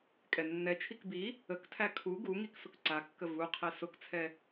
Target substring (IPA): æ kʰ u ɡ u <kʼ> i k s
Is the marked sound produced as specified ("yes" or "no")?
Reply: no